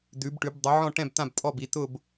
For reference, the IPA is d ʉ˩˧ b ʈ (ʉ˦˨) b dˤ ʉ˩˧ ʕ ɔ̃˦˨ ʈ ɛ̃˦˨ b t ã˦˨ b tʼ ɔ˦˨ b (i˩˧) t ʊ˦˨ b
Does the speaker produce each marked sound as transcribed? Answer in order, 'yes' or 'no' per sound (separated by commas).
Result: no, yes